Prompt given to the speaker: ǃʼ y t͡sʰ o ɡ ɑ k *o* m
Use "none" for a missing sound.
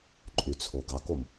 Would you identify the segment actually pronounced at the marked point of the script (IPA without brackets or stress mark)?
o